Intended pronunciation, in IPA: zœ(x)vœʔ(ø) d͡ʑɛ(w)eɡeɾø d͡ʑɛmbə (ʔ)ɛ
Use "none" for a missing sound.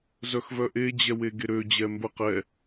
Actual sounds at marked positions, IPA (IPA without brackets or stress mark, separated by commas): x, e, w, q